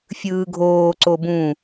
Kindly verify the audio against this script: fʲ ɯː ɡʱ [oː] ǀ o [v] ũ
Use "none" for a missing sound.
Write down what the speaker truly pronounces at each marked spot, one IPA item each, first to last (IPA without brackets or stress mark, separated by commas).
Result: oː, b